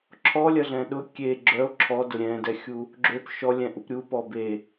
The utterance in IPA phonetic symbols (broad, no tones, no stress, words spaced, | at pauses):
ǁʰɔlʲɐɮɛ̃ ɗʊ kʲe ɡ͡ǁœo̯ ǁʰɔ dʊɾʲɛ̃dɛxʲu | ɡ͡ǁøp ʃɔ lʲɛ̃ʔupɾʲu pɔbe